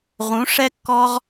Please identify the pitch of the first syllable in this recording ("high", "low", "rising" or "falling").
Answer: rising